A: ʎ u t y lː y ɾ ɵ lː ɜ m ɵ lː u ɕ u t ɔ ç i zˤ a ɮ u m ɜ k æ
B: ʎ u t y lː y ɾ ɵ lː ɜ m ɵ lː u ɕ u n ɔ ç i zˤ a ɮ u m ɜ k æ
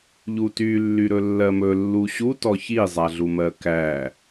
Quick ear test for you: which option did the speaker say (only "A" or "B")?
A